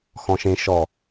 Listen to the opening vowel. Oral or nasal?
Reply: nasal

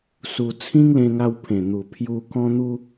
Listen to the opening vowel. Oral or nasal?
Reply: oral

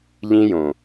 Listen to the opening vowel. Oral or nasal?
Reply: nasal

